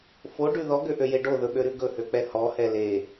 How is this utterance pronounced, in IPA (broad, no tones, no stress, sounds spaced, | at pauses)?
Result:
f o ɖ ʉ ð ɔ ɡ ø ʔ ø j e ɖ o ð ɵ ɓ ø ɾ ʉ ɡ ɵ h ø k͡p ɛ h ɔ h ɛ l e